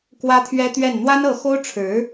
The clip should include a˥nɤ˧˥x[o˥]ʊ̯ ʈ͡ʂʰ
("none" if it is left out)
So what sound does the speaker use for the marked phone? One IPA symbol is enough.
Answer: o˥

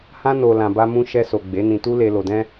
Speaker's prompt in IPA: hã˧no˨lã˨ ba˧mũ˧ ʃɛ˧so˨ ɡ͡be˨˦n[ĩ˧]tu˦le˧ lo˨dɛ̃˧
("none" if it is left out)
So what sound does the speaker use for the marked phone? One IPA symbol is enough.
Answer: ĩ˧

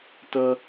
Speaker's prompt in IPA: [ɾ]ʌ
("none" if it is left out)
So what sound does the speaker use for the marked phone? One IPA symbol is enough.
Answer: t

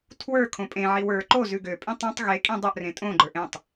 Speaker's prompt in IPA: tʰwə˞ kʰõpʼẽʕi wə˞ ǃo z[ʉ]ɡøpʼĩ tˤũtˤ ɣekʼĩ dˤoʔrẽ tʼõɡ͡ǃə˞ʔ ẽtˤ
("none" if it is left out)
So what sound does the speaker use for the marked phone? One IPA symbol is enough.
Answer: ʉ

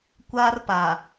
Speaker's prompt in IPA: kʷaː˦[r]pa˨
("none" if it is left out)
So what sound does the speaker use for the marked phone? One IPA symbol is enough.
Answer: r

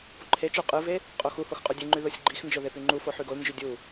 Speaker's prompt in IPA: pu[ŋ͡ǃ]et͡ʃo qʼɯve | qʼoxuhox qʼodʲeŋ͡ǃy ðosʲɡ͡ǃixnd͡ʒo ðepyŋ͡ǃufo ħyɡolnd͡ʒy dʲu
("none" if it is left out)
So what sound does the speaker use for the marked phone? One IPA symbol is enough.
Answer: ǃʰ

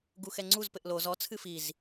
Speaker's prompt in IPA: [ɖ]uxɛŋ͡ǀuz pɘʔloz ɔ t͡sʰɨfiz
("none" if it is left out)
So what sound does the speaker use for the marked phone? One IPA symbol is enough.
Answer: ɡ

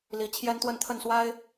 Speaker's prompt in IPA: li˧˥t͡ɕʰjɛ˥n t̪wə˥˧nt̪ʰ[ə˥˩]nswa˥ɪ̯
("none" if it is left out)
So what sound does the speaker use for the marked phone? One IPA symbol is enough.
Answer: ə˥˩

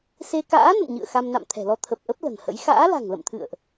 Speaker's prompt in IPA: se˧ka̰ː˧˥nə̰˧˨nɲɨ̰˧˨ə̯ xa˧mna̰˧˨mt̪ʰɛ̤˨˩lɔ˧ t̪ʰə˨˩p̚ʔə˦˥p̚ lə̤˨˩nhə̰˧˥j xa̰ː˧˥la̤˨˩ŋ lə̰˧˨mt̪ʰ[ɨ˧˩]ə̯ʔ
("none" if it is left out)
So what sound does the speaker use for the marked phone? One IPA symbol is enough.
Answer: ɨ̰˧˨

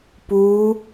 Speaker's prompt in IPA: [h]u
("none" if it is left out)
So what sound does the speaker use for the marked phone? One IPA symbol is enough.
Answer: p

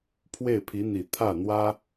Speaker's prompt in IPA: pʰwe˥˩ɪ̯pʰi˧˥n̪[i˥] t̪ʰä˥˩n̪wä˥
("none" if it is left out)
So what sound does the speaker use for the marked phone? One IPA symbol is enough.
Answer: i˨˩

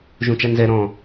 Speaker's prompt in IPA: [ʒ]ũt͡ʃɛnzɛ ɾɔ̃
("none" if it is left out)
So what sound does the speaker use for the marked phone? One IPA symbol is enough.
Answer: ʒ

